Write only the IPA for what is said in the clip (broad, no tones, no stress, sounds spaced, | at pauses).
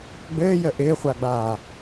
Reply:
ɡ͡b ɘː j ə ʔ ɪː χʷ a ɡ͡b aː